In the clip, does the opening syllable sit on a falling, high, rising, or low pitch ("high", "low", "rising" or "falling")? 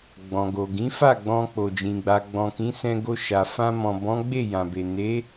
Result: low